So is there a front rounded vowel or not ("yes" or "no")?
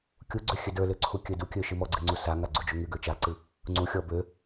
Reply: yes